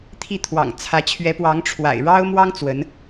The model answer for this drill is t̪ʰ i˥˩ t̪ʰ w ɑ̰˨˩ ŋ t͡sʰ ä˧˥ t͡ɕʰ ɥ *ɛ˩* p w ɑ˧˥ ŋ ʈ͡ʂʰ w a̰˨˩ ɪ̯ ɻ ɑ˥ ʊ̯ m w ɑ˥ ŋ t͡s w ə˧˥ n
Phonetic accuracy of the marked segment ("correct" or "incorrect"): incorrect